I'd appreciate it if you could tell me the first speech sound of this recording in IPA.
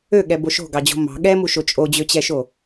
ø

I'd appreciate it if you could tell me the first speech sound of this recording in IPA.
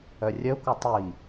œ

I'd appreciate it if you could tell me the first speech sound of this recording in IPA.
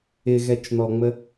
ɪ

